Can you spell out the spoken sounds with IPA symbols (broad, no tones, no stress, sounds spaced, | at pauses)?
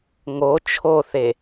ŋ o t͡ʃʰ o θ e